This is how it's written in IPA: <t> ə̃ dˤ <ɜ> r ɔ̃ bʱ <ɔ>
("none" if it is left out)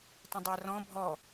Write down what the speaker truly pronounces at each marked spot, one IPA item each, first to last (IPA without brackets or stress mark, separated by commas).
t, ɜ, ɔ